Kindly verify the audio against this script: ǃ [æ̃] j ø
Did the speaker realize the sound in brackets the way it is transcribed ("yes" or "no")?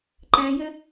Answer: yes